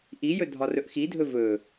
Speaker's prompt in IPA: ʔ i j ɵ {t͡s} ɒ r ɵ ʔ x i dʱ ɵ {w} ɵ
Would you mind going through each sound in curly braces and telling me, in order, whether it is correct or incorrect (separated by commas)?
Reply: incorrect, incorrect